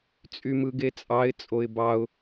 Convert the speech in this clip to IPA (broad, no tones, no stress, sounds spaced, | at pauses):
t͡sʼ y m ɯ ɡ e t͡sʼ ɑ ɪ̯ t͡sʼ o ɪ̯ b ɑ ʊ̯